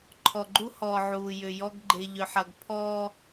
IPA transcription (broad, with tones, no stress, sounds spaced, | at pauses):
ǃʰ ɔ˨ ɡ͡ǃ u˦ h ɔː˨ ʕ uː˨ j ʏ˨ j ɔ˦ ɡ ɡ͡ǃ e˨ ʎ ʏ˨ ħ ɐ˨ ɡ pʰ ɔː˦